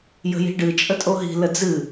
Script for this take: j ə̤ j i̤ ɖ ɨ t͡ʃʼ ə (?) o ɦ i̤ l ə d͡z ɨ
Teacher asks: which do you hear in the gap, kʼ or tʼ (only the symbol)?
tʼ